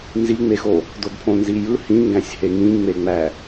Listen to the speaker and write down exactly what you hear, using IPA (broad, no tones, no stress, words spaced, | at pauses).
nziŋ͡mexo | dodpʰõnzijɯ hĩŋɡæ̃sʲhe ŋĩŋ͡meŋ͡mæ